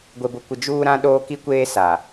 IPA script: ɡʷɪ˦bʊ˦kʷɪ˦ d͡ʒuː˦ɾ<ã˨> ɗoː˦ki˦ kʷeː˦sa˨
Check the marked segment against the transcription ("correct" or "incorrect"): incorrect